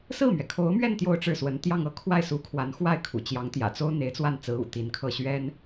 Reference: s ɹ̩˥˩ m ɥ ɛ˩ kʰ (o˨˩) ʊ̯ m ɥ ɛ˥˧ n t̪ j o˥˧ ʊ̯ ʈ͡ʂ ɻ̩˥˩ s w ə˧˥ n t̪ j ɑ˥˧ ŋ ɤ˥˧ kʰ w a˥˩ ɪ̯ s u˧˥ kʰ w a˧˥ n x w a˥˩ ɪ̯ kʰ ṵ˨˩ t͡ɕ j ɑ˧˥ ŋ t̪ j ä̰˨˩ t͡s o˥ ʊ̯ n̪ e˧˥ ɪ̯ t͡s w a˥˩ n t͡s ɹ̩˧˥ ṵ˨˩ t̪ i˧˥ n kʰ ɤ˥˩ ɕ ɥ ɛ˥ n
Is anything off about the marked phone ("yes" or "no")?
yes